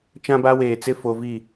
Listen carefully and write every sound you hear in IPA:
t͡ʃã˦ba˦weː˨t͡sɪ˦ fo˨vi˦˨

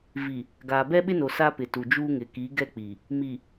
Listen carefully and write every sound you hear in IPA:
vi˨ | ɡaː˨bɛ˦ɓɪ˦no˨ sa˦pɪ˨tu˨d͡ʒuː˦ ŋɪ˨ki˨˦ɡɛ˦k͡pi˨ | mi˨

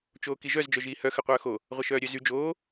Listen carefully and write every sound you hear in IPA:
t͡ʃoːkiʒœz d͡ʒœʒiːhœ xə qʷœːxo | ʁʷɐʃœːɾʲœzy d͡ʒoː

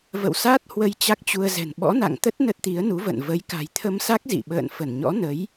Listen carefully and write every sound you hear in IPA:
və̰˧˨wsa˦˥t̚ hwə˧jt͡ɕa˦˥k̚t͡ɕu˧ə̯zɛ̤˨˩n ɓɔ̰˧˥na̰˧˨ŋt̪ə˦˥t̚ nə˦˥t̚t̪i˨˦ə̯nu˨˦və̰˧˨n və˨˦j ka̤˨˩jt̪ʰə˧msa˦˥k̚ zḭ˧˨ɓə̰ː˧˨nfə˧˩nɲɔ̰˧˥ nə˨˦j

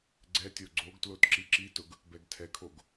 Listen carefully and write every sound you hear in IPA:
ɡ͡ǀɛtʲo ɡ͡ǀoɡtlot ǁiǁitʊɡ | bɛɡtʰɛkʰoɡ

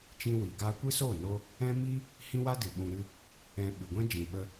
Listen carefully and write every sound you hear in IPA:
t͡ʃĩ˦wi˨ ɡaː˧kʷɨ˦so˦˨no˧ | ɛ̃˦mi˦ | hĩ˦wa˦dɨ˨ ɓũ˧ɾɨ˦ | ɛ̃˧ ɓɨ˨ɡʷɛ̃˦ d͡ʒĩ˨ɓə˧

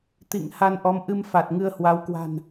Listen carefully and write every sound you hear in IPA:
t̪ḭ˧˨ŋ ha˧nʔɔ˨˦m ʔɨ˧mfa˨˩t̚ ŋɨ˧ə̯hwa˨˦wkwa̤˨˩n

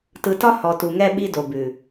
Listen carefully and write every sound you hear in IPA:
tɯ˨tɒ˦ hɔ˨tu˨ŋɛ˦ɓi˦ do˨bʉ˨

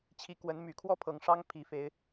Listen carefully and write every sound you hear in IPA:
t͡ɕʰi˧˥kwə˧˥n my˨˩kʰwɔ˥pʰɤ˨˩ŋʂɑ˥ŋ pʰi˧˥fe˧˥ɪ̯

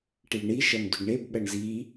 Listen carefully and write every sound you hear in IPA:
ʈiɭɳi ʃɐmdʏɡɳeb ɓɐɳzi

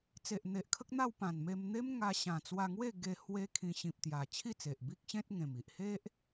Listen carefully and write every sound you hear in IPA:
t͡se˨ʔn̪e˨ʔkʰə˦k̚n̪a˥˧w pã˨˩nme˧mn̪e˦m ŋa˧ɕã˨˩t͡swa˧ŋwe˥˧ ɡe˧ hwe˦kʰĩ˧ ɕĩ˨p̚t̪ja˨˩ t͡ɕʰi˥˧t͡se˨ʔbi˦k̚ɕẽ˦t̚ ŋẽ˨˩m i˨ʔhe˦ʔ

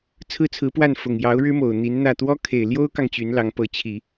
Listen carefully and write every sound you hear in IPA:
t͡sʰɹ̩˥˩ t͡sʰɹ̩˧˥pwa˥˩n fʊ˨˩ŋ jɑ˧˥ʊ̯ ɻɻ̩˥mo˨˩ʊ̯ n̪i˧˥nn̪ä˥˩ t̪wɔ˥kʰe˨˩ɪ̯ ljo˥ʊ̯kɑ˨ŋ t͡ɕy˧˥nlɑ˧˥ŋpɤ˧˥ t͡ɕʰi˨˩˦

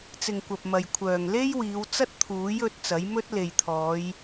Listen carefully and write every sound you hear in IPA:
t͡sɪ˨ŋkʷɐ˨p̚mɐ˨j kʷʰœː˨ŋ le˥jwiː˨˧w t͡sɐ˥t̚t̪ʰuː˨˥jɵ˨˥t̚ t͡sɐ˨˥jmɵ˥t̚ le˨jt̪ʰɔː˨˧j

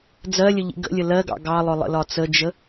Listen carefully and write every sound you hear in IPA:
d͡zɜlʲəʎḭ ɡə̰lʲə lɜɡɑ̰ ɡɑlˠʊlˠə̰lɒ t͡səd͡ʒə

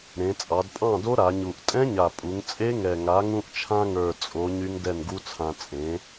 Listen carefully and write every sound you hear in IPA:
ɾẽ˩˧t͡sʼɑ˩˧dpʼɑ̃˥˩do˦˥ ɾa˩˧ɲu˨˩ʔ tʼɛ̃˦˥ɲa˨˩pʼu˩˧ŋ t͡sʼe˦˥ŋɛ˨˩ŋa˩˥ ŋũ˧ʔt͡ʃʰã˧ŋə˞˨˩ t͡sʼo˩˥ ɲy˦˥ŋdɛ˥˩nɡu˦˥t͡sʰã˧ t͡sʼẽ˩˥

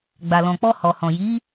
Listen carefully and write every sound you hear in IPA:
ɡ͡ba˨lɔ̃˨k͡pɔ˧ hɔ˨hɔ̃˨ji˨˦

